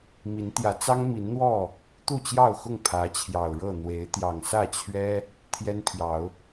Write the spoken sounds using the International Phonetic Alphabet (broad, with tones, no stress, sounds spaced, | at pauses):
m i˨˦ n t̪ j ä˨˦ t͡s ɑ˦ ŋ m i˨˦ n n̪ w ɔ˥˨ | t̪ u˥˨ t͡ɕ j ɑ˥˨ ʊ̯ x ʊ˥˨ ŋ pʰ ä˨˦ t͡ɕʰ j ɑ˨˩ ʊ̯ ɻ ɤ˥˨ n̪ w e˨˦ ɪ̯ t̪ j ɑ˨˩ ŋ s ä˥˨ t͡ɕʰ ɥ ɛ˦ | t̪ʰ j ɛ˦ n pʰ j ɑ˨˦ ʊ̯